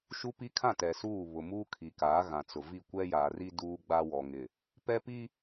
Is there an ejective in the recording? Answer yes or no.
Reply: no